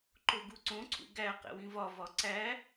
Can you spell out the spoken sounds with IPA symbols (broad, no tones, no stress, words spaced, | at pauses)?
ǃoɡuǀõ ǀʰṵɡæ qḛwĩvɒ vɒǀæ